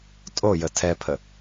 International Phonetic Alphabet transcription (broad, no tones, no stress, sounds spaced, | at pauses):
tʼ o j ə tʰ ɛ pʰ ə